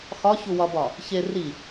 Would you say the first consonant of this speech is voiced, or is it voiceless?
voiceless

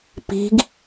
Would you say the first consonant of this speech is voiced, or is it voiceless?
voiceless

